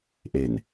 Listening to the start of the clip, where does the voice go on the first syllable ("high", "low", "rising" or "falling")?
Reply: low